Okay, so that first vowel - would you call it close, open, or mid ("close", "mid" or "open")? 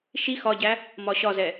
close